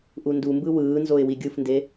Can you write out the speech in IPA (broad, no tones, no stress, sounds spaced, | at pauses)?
ʔ u n d u m b ɯ w ɯː n z o ɪ̯ w i ɡʲ ɯ f n d e